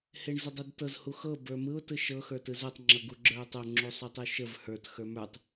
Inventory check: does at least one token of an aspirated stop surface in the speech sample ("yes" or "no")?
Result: no